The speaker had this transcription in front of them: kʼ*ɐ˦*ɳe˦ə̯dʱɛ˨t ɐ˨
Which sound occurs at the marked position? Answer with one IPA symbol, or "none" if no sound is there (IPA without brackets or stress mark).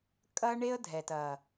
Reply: ɐ˦